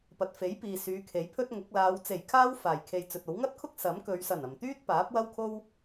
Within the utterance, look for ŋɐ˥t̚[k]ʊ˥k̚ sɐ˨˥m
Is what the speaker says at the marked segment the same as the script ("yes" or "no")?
no